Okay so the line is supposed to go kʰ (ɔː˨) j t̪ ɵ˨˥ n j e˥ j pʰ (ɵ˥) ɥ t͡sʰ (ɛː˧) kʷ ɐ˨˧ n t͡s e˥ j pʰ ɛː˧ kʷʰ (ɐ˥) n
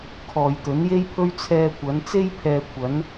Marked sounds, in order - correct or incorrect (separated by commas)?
correct, correct, correct, incorrect